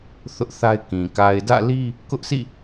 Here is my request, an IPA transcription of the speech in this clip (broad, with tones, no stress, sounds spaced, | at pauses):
θ ʊ˦ ʔ θ a˦ ɪ̯ k ĩ˨ k a˨ ɪ̯ d ä̰˦˨ l i˦ | k ʊ˦ ʔ s ḭ˦˨